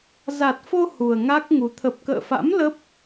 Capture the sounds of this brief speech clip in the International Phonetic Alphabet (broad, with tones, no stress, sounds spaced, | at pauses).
z a˨˩ t̚ f o˧ h u˨˩ ə̯ ŋ a˦˥ k̚ ŋ u˨˦ t̪ʰ ə˨˩ p̚ k ə̰ː˧˨ f a̰˧˥ m l ə˦˥ p̚